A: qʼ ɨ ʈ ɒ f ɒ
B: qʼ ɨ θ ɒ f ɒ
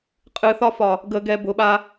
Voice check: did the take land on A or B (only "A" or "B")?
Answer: B